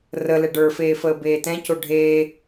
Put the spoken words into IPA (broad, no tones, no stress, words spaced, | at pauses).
rə lɛɖə˞feː fəːbeːtɛ̃co ɖʱeː